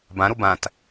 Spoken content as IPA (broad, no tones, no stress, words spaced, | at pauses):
bãɾo bãt